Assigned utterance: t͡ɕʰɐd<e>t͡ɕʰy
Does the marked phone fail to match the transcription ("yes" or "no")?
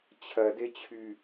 no